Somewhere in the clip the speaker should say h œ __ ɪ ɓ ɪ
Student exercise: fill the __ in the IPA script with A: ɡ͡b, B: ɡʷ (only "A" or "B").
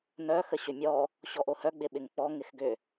A